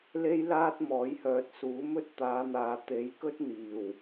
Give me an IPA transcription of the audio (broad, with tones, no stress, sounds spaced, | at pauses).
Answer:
l e˥ j l aː˥ t̚ m ɔː˨˥ j h œː˨ t̚ s uː˨˥ m ɵ˥ t̚ t̪ aː˨˧ n̪ aː˨ t̪ e˨˥ j k ɵ˥ t̚ n̪ iː˨˩ w